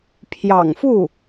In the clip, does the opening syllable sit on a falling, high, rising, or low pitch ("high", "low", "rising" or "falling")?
low